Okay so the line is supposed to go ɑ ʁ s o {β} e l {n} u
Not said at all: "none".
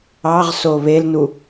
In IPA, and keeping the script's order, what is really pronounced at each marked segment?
β, n

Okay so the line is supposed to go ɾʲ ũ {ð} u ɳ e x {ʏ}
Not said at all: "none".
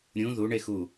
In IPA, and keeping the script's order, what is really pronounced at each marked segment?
ð, u

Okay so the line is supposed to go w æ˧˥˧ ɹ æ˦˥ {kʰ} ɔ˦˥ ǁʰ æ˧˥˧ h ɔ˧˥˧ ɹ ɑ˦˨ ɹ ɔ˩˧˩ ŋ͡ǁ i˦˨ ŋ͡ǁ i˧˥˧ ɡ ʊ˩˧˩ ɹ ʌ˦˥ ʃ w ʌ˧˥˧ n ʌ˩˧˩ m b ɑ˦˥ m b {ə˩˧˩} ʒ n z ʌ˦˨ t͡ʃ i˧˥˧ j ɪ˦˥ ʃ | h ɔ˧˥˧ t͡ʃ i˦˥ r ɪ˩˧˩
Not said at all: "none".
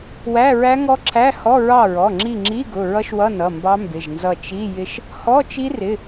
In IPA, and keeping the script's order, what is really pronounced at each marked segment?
ŋ, ɪ˩˧˩

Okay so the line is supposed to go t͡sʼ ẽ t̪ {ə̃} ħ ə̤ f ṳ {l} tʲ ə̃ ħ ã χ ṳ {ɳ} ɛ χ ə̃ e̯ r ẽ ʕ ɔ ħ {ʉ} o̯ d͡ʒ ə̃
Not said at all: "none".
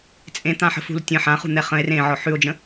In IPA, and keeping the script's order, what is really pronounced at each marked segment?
ã, l, n̪, ʉ

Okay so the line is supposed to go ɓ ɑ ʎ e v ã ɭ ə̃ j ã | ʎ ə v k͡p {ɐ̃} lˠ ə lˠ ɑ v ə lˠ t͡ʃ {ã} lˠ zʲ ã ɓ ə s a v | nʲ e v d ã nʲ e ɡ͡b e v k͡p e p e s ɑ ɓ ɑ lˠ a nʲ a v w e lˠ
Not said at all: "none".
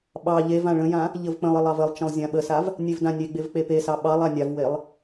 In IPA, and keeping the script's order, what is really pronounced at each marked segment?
ə̃, ə̃

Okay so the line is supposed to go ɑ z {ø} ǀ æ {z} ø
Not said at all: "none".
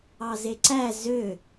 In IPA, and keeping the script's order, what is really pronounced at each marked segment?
e, z

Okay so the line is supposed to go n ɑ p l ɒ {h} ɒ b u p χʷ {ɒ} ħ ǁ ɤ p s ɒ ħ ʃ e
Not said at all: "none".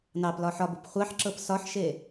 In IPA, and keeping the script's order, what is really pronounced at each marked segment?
ħ, ɑ

